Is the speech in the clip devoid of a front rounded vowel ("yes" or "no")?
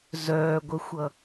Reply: no